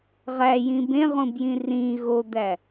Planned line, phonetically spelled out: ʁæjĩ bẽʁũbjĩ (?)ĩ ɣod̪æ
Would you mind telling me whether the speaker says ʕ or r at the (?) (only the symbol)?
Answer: r